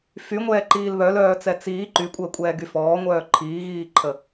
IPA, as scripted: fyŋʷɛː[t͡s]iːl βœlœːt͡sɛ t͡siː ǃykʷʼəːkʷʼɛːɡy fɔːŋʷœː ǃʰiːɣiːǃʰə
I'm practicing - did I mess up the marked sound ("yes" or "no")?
yes